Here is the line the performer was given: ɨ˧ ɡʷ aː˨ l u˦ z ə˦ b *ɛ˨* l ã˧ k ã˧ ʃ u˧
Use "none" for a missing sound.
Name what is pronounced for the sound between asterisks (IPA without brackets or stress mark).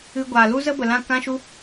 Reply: ə˨